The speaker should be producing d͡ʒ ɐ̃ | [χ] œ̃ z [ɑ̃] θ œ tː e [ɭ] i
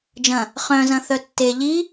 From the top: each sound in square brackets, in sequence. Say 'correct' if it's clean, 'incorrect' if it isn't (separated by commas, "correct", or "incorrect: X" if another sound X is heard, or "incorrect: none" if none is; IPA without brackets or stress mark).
correct, incorrect: ɐ̃, incorrect: ʎ